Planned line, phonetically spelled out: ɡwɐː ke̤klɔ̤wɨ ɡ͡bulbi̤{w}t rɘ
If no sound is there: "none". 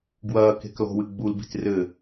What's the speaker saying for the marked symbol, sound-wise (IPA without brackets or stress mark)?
none